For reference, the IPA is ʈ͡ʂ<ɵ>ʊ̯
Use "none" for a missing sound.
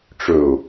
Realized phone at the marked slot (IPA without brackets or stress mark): ɵ